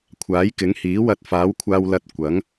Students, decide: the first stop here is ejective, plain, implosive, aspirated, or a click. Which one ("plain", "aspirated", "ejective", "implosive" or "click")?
aspirated